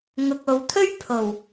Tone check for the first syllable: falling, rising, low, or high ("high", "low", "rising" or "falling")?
low